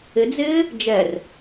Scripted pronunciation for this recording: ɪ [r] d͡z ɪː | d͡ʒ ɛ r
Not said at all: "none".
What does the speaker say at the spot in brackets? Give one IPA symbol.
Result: none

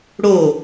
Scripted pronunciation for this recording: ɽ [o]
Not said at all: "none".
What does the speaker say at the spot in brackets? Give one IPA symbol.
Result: o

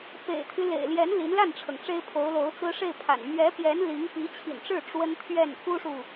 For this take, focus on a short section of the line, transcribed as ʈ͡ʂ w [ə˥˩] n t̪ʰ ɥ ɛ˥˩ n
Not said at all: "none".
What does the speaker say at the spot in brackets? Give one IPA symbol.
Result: ə˥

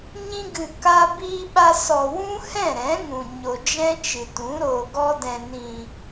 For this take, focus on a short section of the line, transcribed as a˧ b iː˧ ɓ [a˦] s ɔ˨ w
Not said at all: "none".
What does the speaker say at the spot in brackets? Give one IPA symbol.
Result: a˧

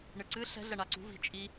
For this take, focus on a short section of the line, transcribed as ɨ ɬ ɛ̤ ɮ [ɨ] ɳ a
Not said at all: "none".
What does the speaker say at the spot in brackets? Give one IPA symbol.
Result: ɛ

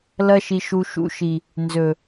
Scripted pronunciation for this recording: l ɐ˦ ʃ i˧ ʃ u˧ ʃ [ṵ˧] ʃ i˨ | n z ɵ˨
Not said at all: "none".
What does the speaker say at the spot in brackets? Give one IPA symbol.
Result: ṵ˧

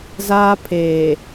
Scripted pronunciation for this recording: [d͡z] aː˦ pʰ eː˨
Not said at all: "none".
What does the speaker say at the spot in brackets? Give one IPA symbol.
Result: z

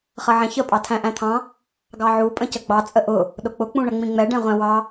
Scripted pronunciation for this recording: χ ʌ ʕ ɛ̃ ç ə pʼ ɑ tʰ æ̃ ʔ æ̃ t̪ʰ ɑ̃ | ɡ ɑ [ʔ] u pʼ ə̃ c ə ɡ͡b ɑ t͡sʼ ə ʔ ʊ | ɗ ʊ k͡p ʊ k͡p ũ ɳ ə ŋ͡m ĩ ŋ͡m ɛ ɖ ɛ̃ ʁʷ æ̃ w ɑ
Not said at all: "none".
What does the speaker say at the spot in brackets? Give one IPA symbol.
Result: ʕ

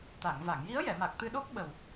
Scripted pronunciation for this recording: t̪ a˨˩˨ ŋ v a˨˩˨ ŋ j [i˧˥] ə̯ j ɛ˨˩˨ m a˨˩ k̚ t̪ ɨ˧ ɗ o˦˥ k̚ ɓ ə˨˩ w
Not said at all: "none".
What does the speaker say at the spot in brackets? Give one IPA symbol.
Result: i˧˥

